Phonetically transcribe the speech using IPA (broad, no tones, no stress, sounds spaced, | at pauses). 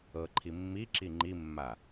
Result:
ɤ ǃʰ i mː i ǁ i ŋ͡ǃ i mː a